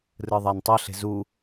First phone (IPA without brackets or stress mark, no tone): r